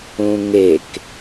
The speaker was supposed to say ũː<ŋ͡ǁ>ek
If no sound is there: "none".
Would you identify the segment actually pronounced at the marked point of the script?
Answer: ŋ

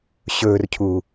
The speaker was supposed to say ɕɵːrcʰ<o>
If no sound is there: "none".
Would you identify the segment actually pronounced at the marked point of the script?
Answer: u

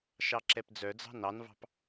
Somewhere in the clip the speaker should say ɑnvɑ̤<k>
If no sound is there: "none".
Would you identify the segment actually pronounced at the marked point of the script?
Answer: p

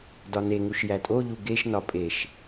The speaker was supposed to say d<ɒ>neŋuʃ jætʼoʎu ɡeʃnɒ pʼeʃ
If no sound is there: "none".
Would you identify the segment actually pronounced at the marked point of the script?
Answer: ɒ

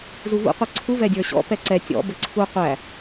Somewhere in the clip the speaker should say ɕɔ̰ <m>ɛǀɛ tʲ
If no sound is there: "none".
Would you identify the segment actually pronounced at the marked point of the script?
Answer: p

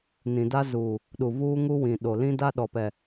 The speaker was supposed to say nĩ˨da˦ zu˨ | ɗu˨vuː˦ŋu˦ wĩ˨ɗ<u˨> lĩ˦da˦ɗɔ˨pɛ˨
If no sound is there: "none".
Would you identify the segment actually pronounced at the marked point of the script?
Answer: o˨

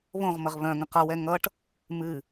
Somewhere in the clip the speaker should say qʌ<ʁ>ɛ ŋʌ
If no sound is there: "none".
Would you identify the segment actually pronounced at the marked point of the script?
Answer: w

